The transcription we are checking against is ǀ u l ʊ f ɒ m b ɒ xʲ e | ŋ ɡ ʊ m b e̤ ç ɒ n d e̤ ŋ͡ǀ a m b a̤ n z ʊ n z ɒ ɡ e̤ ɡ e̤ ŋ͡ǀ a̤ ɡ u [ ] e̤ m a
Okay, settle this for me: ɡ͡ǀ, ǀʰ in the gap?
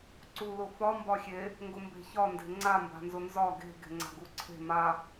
ǀʰ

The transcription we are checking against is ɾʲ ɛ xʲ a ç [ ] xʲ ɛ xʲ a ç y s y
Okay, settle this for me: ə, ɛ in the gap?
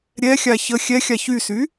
ə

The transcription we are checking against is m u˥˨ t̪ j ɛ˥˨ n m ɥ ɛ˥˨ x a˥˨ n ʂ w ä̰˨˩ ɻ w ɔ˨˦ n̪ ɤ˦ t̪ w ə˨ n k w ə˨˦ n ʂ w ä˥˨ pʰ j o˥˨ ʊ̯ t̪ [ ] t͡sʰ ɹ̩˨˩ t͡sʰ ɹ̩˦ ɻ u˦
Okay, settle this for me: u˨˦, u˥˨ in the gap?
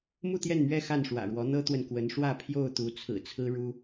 u˨˦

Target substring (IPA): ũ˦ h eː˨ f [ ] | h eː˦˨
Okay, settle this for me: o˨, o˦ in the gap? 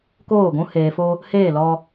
o˦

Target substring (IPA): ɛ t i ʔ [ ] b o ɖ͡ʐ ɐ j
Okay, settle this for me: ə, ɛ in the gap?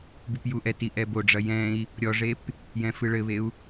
ɛ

